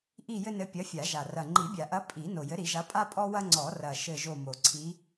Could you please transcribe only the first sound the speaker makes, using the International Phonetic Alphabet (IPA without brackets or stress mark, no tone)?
ʔ